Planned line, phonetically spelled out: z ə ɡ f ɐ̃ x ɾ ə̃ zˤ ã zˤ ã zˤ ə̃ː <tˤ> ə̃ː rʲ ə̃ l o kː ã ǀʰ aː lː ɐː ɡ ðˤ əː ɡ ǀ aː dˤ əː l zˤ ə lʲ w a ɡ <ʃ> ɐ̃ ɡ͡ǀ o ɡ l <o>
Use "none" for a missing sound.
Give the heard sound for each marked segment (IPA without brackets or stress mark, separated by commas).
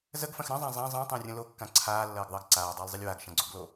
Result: tˤ, ʃ, o